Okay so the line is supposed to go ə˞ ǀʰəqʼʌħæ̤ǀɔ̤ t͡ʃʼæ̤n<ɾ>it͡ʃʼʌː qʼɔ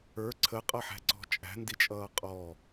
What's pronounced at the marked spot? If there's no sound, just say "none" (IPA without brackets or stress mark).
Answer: d